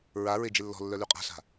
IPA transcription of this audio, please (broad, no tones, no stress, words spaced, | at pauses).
ɹa ɹed͡ʒelːɔ̤lːœ lyqʼa̤ɬa̤